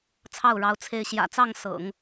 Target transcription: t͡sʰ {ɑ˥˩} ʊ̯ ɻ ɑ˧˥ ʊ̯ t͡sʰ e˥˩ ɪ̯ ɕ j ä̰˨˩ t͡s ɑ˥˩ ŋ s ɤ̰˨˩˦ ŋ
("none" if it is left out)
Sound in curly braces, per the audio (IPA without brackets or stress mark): ɑ˥˩